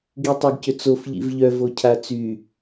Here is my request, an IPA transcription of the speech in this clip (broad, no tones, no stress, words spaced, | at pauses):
ɡitˤɐɡcʏt͡sof ʎḭvʎœ vocʰat͡sy